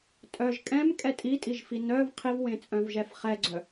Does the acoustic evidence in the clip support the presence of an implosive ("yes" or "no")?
no